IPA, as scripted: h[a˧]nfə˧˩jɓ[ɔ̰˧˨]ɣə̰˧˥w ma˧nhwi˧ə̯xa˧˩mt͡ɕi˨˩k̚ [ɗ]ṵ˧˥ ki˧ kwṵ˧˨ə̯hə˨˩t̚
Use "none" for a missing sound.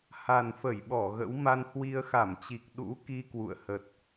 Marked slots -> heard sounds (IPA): a˨˩, ɔ˧˩, ɗ

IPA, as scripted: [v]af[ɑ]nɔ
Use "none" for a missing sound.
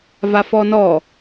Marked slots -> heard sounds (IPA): v, ɔ

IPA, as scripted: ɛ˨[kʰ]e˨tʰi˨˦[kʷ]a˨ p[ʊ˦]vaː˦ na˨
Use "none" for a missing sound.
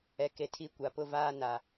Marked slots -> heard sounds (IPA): k, kʷ, ʊ˦

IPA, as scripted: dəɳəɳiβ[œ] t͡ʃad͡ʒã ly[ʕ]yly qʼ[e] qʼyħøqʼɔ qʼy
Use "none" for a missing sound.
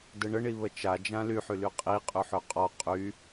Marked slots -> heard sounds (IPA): ə, ħ, i

